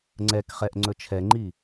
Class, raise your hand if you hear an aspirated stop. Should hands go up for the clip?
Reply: yes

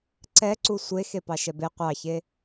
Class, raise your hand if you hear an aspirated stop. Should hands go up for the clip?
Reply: no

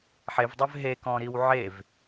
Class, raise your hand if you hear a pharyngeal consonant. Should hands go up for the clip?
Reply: yes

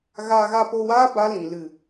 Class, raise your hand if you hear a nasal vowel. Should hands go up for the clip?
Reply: yes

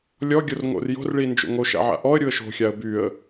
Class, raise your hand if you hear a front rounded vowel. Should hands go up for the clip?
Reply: yes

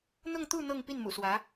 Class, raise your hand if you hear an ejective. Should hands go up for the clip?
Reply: no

